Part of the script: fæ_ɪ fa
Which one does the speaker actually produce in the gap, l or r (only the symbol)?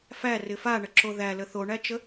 r